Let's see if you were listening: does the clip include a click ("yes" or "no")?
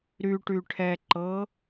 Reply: yes